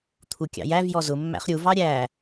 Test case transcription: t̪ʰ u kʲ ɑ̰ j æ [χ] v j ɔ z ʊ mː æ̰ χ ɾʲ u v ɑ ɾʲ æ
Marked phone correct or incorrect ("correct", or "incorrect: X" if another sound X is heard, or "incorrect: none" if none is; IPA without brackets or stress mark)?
incorrect: none